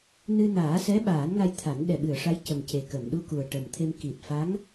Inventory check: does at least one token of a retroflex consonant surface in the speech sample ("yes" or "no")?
yes